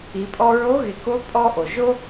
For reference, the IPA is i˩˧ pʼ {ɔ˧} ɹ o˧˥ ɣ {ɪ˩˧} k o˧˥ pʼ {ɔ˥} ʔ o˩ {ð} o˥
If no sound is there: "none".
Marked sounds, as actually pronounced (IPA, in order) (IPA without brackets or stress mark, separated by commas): ɔ˧, ɪ˩˧, ɔ˧, ʒ